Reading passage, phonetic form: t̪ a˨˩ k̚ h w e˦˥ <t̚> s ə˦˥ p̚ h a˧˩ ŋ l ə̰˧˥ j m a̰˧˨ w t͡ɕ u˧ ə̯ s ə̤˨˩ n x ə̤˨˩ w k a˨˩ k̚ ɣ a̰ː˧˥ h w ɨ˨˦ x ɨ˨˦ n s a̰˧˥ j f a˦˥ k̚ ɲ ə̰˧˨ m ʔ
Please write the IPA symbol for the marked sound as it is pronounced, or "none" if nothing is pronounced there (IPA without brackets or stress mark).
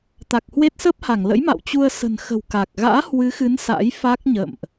t̚